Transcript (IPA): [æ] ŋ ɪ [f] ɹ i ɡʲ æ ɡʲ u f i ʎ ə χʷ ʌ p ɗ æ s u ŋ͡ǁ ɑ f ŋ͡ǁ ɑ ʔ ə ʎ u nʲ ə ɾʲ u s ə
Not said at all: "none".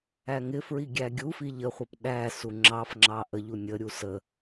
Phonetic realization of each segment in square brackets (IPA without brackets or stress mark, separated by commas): æ, f